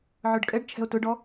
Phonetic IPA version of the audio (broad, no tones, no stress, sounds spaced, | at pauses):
ʕ ə˞ ɖ kʼ ɛ ɖ t͡ʃʰ ɛ̤ o̯ t ʊ ɖ ɔ